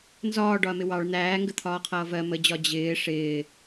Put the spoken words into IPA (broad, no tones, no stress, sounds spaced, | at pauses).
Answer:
n z ɒː ɖ ɒ ɐ̯ m ɪ w ɑ ɭ n̪ æː ŋ ɡ ə t̪ʰ ɒː qʰ ʌː v ɜ m ə d͡ʑ ɒ d͡ʑ ɪː ʂ ɪː